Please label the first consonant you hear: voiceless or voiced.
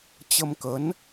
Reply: voiceless